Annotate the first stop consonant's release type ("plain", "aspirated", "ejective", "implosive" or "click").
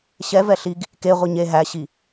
plain